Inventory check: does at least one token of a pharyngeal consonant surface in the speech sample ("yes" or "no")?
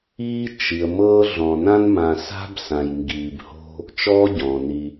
no